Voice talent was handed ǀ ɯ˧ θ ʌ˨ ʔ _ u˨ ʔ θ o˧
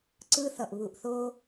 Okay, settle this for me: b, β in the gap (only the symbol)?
β